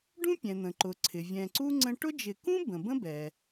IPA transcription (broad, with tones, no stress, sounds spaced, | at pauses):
ɖ ũ˦ pʲ ɛ̃˩ n̪ ə̃˩ ǃ ʊ˩ ǀʰ ɪ˩ vʲ ɛ̃˨ ǀ u˥ ŋ͡ǀ ə̃˦ ʈ ʊ˦ d͡ʒ ɪ˨ k ũ˥ b ə̃˩ b ə̃˥ b ɛ˩